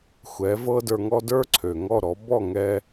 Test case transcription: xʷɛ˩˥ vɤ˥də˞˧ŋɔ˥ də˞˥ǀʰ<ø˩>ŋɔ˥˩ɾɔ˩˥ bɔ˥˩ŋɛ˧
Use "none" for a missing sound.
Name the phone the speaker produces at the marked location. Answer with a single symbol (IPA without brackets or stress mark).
ø˩